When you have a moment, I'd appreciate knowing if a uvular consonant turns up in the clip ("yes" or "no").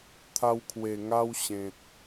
no